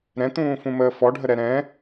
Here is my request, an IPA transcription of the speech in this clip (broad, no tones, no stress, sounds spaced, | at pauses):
ɾ ɛ̃ t̪ ũː f ũ m əː f ɔ ɖʱ ə ɾ ɛ ɾ ɛ̃